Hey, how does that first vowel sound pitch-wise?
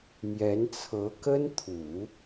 rising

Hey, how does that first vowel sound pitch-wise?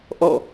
falling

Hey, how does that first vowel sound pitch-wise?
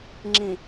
low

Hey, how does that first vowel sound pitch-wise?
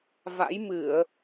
rising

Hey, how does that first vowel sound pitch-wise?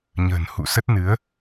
low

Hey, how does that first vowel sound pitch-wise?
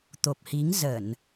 low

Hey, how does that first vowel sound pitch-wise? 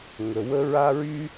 low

